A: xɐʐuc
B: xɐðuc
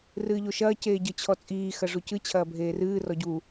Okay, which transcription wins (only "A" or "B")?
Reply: A